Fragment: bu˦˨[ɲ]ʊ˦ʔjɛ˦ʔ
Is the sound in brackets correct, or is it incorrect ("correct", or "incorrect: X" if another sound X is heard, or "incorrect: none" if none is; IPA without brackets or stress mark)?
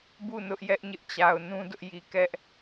incorrect: n